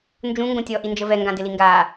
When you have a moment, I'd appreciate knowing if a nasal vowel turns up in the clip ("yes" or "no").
yes